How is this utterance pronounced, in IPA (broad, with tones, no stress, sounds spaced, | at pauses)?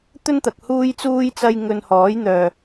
t̪ ɵ˥ n t̪ ɐ˨ k̚ h uː˥ j t͡s uː˥ j t͡s ɐ˥ j ŋ ɵ˧ n h ɔː˨˥ j n̪ œː˨